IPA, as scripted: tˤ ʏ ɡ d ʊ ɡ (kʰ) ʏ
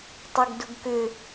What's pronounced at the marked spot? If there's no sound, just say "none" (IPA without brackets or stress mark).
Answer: k